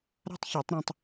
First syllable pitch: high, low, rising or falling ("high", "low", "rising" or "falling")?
high